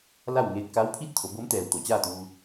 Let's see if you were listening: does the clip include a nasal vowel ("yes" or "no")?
no